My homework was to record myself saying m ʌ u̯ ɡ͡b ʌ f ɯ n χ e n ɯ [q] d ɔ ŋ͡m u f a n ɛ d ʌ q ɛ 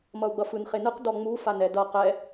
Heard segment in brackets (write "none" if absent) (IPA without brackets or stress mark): q